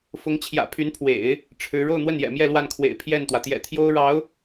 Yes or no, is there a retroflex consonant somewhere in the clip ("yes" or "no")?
yes